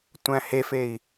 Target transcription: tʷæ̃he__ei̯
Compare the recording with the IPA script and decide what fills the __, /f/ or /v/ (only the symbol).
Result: f